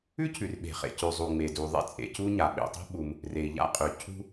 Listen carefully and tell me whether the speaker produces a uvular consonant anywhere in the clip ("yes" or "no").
yes